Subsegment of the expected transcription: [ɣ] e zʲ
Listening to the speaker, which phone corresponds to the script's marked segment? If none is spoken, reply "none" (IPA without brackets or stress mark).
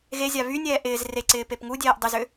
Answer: ɣ